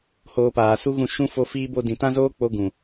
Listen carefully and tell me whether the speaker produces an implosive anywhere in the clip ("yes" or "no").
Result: no